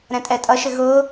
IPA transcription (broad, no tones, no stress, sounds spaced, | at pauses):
ɾ ɛ̃ tʼ ɛ tʼ ʌ ʃ ɪ ɣ ʊː